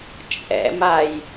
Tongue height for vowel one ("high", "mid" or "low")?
mid